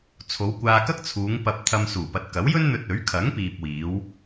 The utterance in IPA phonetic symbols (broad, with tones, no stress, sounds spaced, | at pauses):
t͡sʰ o˨˧ w kʷ aː˧ k ɐ˥ k̚ t͡sʰ uː˨˧ ŋ p ɐ˨ p̚ t̪ʰ ɐ˧ m s uː˨˩ p ɐ˨ t̚ k ɐ˨˥ w j ɵ˥ n n̪ ɵ˧ t̚ ɵ˨˥ ɥ kʰ ɐ˨˥ ŋ p iː˨ p̚ w iː˨˧ w